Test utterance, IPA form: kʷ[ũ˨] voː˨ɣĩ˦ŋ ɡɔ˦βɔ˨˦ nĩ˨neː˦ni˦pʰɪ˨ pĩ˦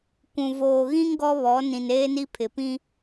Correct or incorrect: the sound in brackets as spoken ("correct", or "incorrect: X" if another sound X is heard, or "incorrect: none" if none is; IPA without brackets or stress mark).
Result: correct